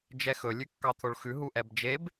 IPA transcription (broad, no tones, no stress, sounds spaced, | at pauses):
d͡ʒ ɛ x ɵ lʲ ʉ kː ɑ t̪ʰ o ɭ x ʉ ɦ u ʔ ɛ b d͡ʒ e b